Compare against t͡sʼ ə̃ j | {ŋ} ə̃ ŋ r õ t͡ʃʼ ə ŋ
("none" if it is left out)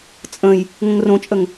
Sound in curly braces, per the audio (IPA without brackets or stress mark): ŋ